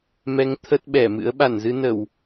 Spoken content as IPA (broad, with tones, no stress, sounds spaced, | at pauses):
m ɛ˨˦ ŋ t̪ʰ ə˦˥ t̚ ɓ ɛ˧˩ m ɨ̰˧˥ ə̯ ɓ a˧˩ n z ɨ˧ n ə˧˩˨ w